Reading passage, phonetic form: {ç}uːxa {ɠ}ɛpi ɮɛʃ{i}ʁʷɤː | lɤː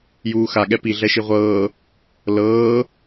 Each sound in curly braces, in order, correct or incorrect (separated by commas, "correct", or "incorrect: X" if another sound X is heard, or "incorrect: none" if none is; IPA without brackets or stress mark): incorrect: j, correct, correct